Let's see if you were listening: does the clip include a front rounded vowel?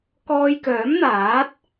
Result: yes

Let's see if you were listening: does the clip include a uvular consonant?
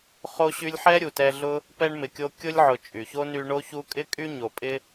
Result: yes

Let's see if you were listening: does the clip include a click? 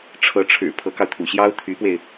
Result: no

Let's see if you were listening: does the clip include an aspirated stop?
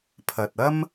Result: yes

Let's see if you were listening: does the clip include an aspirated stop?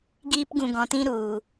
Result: no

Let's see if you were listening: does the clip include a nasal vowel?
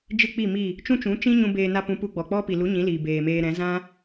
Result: yes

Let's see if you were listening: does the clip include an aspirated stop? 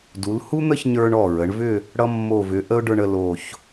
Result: no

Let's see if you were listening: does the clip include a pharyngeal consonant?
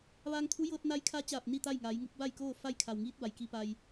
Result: no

